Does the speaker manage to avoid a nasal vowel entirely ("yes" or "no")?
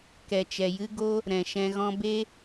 no